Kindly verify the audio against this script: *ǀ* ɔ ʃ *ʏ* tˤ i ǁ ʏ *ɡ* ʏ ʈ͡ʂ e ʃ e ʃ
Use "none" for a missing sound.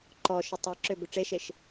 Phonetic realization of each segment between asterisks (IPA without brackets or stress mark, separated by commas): ǃ, ʏ, b